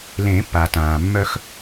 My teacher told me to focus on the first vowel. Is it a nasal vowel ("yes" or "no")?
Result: yes